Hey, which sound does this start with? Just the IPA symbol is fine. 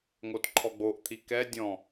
ŋ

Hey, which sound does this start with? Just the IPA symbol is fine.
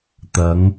t̪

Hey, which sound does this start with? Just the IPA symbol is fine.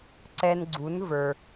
ǀ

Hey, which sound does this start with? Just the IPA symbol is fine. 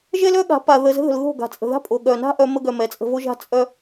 ʒ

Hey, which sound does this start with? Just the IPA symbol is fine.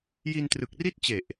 j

